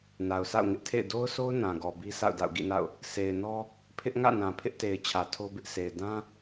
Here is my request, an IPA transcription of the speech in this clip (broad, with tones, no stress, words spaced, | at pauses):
na˨ʊ̯sa̰˦˨ʊ̯ŋɪ˦ʔtʰḛ˦˨ɪ̯ do˦ʊ̯so˦ʊ̯ nã˨ɡɔ˨bi˦ sʰa̰˦˨ʊ̯da̰˦˨ʊ̯ɡḭ˦˨na̰˦˨ʊ̯ | sʰe˨ɪ̯nɔ˦ | pʰɪ˦ʔŋä̰˦˨ nã˨pʰɪ˦ʔte˨ɪ̯ t͡ɕʰä˨tʰo˦bɪ˦ʔsʰe˨ɪ̯ dã˦